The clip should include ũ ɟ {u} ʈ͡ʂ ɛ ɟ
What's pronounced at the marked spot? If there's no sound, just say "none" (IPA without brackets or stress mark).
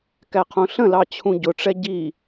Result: ʊ